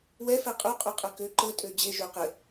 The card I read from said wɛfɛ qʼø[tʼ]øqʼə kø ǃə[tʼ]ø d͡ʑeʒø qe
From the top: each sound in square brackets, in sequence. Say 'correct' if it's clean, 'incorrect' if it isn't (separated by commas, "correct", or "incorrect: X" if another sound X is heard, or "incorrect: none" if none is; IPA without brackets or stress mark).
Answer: incorrect: qʼ, correct